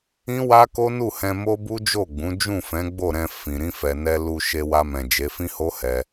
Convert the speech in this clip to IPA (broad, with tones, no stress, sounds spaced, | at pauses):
ĩ˦ w a˦ k o˦ n u˦˨ h ɛ̃˧ m o˦ b u˦ d͡ʒ o˦˨ ɡ͡b ũ˨˦ d͡ʒ ũ˦˨ f ɛ̃˨˦ ɡ͡b o˦˨ ɾ ɛ̃˧ f ĩ˨ ɾ ĩ˧ f ɛ˨ n ɛ˧ l u˧ ʃ e˧ w a˧ m ɛ̃˨ d͡ʒ e˨˦ f ĩ˦ h o˦ h ɛ˧